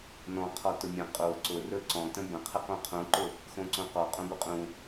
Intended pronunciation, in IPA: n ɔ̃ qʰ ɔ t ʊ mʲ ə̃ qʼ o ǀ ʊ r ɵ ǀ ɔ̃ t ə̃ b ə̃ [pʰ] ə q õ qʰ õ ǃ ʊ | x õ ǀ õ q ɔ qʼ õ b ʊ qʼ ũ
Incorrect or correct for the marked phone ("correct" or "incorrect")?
incorrect